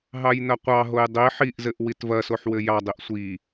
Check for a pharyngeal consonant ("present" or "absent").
present